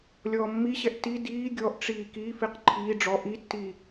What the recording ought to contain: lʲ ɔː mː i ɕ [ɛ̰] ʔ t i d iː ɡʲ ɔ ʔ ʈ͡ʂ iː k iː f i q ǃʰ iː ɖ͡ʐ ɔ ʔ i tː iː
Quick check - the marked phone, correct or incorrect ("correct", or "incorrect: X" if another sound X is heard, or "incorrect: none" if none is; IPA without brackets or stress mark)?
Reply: incorrect: ɛ